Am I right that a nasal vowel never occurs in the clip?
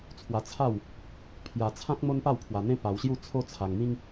no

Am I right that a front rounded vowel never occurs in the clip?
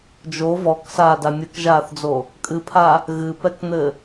yes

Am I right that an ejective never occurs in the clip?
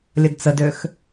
yes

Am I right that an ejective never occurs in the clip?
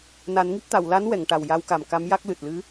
yes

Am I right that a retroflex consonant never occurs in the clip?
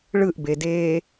no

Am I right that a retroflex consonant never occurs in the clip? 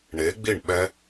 no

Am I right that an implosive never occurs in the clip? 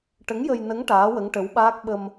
no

